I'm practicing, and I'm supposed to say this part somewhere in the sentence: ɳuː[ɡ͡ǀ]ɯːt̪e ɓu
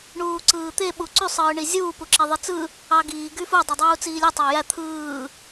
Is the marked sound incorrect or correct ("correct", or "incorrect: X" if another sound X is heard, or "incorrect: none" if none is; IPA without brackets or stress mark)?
incorrect: ǀ